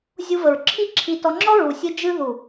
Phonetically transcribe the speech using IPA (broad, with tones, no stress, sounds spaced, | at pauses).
zʲ u˧ v ə˨ ɹ ǁʰ i˦ ǁʰ i˧ t ɔ˧ ŋ͡ǁ ɔ˦ ɹ u˨ sʲ ɨ˧ d͡ʒ ɨ˧ ð u˨